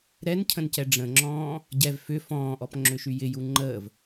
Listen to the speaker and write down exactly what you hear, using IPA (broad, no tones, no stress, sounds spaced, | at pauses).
ɾ ɛ n cʰ ə̃ n c ɛ ɖ͡ʐ ə̃ ŋ͡ǁ ɔ̃ː | ɟ ɛ v f ʏ f ɔ̃ː ʔ ɔ p ŋ͡ǁ ʏ ʃ y j ɪ j u ŋ͡ǃ əː v